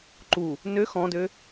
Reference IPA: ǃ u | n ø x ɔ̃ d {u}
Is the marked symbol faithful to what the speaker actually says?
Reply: no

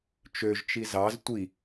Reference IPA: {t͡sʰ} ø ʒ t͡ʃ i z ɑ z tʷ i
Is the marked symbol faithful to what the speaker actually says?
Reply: no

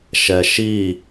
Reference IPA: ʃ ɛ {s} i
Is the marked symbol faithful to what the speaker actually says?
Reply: no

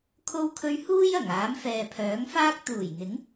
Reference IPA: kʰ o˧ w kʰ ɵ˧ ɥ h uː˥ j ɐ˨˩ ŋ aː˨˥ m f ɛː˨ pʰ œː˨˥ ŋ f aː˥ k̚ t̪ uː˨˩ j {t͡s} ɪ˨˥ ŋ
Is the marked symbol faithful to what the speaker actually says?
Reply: no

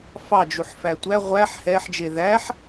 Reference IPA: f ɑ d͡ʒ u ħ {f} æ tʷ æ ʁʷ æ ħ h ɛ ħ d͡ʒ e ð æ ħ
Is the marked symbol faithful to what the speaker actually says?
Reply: yes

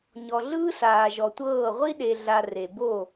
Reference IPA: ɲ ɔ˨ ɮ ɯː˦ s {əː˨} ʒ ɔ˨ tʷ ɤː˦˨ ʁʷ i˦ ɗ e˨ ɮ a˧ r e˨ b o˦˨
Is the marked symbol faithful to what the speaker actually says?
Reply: no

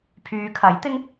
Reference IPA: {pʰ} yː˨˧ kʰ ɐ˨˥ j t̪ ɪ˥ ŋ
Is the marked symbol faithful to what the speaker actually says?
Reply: yes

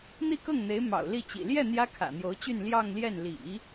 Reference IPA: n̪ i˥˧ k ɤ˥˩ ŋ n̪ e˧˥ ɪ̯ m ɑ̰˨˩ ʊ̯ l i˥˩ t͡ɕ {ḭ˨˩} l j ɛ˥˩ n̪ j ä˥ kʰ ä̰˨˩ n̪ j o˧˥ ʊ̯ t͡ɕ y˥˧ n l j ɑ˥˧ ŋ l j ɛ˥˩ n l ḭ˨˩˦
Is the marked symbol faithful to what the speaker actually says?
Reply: yes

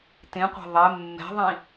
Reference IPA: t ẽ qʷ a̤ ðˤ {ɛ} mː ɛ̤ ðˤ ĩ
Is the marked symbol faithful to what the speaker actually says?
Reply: yes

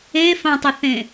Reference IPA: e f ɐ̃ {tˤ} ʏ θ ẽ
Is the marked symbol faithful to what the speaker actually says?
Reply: yes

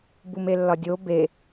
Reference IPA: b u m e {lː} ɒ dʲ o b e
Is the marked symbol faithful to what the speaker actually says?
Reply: yes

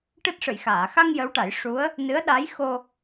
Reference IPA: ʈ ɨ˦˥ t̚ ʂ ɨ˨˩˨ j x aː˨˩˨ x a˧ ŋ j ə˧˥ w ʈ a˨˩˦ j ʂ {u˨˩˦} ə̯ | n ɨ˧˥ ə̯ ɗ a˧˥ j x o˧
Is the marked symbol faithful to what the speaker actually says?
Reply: no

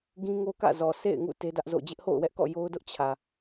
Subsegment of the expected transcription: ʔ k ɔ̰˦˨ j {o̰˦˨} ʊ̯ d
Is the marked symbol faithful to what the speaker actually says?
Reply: no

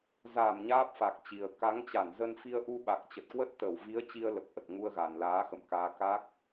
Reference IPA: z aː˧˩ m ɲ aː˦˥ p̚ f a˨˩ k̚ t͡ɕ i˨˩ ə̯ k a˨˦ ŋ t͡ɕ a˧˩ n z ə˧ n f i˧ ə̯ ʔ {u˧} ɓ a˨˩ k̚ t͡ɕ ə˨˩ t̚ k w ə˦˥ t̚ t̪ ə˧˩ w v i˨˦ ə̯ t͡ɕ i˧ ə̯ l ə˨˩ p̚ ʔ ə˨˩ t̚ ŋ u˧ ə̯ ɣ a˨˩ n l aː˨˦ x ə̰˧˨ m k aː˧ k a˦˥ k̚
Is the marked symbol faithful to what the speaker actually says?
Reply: yes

